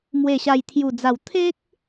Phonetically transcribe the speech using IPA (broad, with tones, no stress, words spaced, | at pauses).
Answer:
mwe˨˩ɕa˨˩jt̪ʰju˨˩d͡za˨˩w t̪ʰe˦k̚